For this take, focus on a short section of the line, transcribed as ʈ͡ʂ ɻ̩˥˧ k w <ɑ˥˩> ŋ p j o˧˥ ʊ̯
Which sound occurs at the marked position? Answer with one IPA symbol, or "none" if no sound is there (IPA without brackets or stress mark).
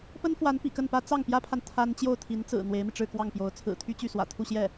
ɑ˥˩